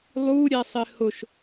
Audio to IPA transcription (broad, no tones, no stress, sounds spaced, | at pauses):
lˠ u ɾʲ ɛ sˤ ɪ h ʊ ʃ